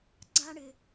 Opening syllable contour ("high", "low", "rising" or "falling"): high